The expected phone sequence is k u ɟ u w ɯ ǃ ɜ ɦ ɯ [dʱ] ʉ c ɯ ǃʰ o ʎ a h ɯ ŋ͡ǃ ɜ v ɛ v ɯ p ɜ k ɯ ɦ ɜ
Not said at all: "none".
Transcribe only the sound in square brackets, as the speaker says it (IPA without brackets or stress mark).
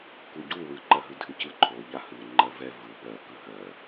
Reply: dʱ